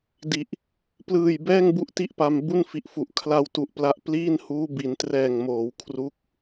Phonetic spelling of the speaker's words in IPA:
d i˨˩ ʔ | p l ɯː˨˩ j b ɛː˥˩ ŋ b u˦˥ ʔ t i˥˩ ʔ p a˧ m b u˥˩ n f i˨˩ ʔ f u˨˩ ʔ kʰ l a˧ w t u˨˩ ʔ p l a˦˥ ʔ p l iː˥˩ n h uː˦˥ b i˩˦ n t r ɛː˨˩ ŋ m oː˩˦ w kʰ r u˦˥ k̚

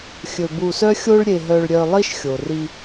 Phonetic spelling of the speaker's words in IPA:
xʲ ɵ˧ b u˧ s œ˥ xʲ o˥ ɭ ɾʲ e˧ ɦ œ˧ ɭ ɾʲ œ˧ lˠ i˥ ʃ xʲ o˩ r i˧

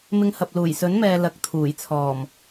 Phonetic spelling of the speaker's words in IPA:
m ɪ˧ ŋ h ɐ˨ p̚ l uː˨˩ j s ɵ˨˥ n m ɛː˨ l ɐ˨ k̚ t̪ʰ uː˨˩ j t͡sʰ ɔː˨˩ m

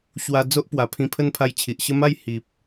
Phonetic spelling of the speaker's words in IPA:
ɕ w a˧ d͡z o˦ ʔ p w a˨˩ pʰ ĩ˧ pʰ ə˦ n pʰ a˧ j t͡ɕʰ i˨ ʔ ɕ ə˦ m a˥˧ j h i˨ p̚

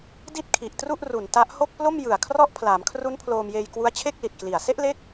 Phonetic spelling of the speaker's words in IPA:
d i˥˩ t̚ kʰ i˨˩ ʔ t r u˥˩ ʔ r u˨˩ n t a˦˥ ʔ h o˥˩ k̚ p l o˥˩ m j ɯ˨˩ a̯ kʰ r ɔ˦˥ ʔ pʰ l aː˩˦ m kʰ r u˦˥ n pʰ l oː˧ m j eː˧ j k w u˦˥ a̯ t͡ɕʰ e˥˩ k̚ l i˨˩ t̚ k l i˨˩ a̯ s e˥˩ ʔ l e˦˥ k̚

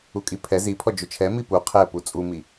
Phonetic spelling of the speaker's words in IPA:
u kʼ i pʰ ɛ z i pʰ ɔ d͡ʒ ʊ t͡ʃʰ ɛ m i p u qʰ ɛ p u t͡sʼ u m i

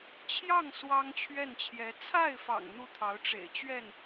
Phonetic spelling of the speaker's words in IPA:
t͡ɕʰ j ɑ˥˩ ŋ s w ɑ˥ ŋ t͡ɕʰ ɥ ɛ˥˩ n t͡ɕʰ j ɛ˧˥ t͡sʰ a˥˩ ɪ̯ f ɑ̰˨˩ ŋ n̪ u˥˩ t̪ʰ ɑ˧˥ ʊ̯ ʈ͡ʂ ḛ˨˩ ɪ̯ t͡ɕ ɥ ɛ˥˩ n

